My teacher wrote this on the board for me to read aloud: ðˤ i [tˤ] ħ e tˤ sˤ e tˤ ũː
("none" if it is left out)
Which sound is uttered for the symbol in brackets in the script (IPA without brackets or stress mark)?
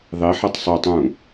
none